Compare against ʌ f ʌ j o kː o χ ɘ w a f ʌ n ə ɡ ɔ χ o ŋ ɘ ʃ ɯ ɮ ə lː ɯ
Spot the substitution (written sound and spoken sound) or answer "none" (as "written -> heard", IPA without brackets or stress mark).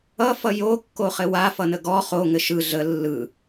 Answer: none